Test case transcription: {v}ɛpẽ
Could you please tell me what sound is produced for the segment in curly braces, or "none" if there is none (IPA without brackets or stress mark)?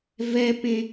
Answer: v